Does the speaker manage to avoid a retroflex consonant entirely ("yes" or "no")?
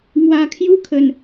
yes